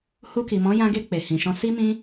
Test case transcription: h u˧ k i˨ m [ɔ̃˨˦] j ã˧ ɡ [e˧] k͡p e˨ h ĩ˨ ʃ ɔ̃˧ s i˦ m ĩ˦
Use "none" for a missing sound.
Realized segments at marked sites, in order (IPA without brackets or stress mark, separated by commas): ɔ̃˨˦, e˧